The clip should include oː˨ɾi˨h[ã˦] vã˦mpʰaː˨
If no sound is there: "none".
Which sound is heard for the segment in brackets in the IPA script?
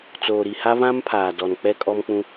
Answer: a˦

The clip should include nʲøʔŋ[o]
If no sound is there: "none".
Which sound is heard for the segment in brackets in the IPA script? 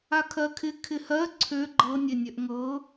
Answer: ɤ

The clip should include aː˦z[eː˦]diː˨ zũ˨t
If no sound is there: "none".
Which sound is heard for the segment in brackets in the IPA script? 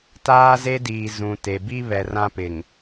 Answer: e˦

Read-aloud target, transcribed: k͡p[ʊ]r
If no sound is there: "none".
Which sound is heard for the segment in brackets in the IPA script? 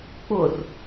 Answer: ʊ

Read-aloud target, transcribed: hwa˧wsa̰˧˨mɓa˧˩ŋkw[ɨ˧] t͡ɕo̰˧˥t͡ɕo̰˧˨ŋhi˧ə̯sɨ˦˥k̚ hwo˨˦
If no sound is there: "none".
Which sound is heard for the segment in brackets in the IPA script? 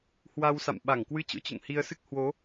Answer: ɨ˧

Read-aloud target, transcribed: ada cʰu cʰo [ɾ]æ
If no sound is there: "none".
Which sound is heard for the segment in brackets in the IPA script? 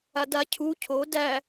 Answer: d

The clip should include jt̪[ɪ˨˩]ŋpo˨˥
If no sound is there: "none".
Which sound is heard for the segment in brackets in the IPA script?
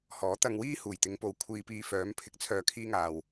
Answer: ɪ˨˧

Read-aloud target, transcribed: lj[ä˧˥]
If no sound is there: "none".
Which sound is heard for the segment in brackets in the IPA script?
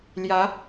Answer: ä˧˥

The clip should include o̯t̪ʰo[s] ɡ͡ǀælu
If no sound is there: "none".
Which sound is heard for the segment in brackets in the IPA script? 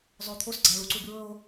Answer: s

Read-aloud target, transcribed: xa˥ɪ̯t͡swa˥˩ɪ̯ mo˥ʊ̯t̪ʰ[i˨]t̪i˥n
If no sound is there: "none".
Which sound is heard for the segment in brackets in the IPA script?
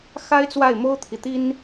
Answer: i˨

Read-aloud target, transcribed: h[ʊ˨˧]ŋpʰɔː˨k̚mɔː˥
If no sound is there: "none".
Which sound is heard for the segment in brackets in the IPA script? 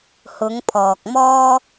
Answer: ʊ˨˧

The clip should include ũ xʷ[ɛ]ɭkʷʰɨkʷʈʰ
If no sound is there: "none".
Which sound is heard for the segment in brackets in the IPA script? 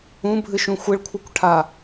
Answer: ɪ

